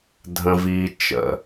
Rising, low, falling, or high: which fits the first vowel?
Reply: high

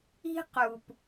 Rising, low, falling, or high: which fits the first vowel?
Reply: high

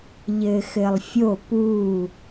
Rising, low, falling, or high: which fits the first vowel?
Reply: low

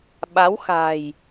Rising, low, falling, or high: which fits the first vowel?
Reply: rising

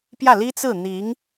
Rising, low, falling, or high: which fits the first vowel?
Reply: falling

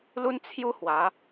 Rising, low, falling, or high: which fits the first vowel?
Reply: high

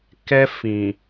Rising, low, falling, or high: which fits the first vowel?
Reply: high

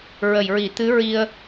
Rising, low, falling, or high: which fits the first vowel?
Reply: low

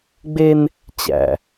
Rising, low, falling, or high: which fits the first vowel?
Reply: high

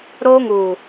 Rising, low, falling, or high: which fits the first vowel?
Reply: high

